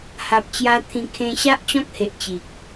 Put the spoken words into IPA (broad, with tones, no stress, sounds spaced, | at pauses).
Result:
h a˨ p̚ t͡ɕ j a˧ t̪ʰ ĩ˧ kʰ ẽ˧ ɕ a˦ ʔ t͡ɕ ɔ̃˦ k̚ h e˨ ʔ t͡ɕ i˨ k̚